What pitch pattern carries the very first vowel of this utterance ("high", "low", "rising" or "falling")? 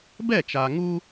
falling